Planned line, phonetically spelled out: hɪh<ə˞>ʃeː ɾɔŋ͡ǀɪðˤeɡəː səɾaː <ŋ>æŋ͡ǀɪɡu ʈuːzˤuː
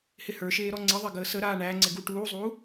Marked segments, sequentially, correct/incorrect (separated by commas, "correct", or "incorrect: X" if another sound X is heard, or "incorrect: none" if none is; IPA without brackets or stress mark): correct, incorrect: ɳ